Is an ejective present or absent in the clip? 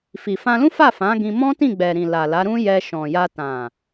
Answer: absent